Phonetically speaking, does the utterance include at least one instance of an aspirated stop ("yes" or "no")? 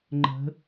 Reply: no